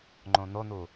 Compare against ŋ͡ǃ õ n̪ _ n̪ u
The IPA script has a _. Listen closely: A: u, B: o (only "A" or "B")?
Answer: B